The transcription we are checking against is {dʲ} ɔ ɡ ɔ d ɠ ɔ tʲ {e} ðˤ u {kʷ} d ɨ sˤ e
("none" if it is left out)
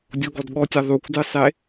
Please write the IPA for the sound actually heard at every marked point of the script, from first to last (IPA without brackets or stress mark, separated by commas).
dʲ, ɛ, kʷ